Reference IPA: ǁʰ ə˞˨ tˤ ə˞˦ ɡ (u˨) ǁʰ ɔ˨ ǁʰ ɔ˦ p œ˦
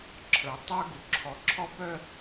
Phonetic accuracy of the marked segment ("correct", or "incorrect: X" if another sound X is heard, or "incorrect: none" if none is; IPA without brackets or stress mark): correct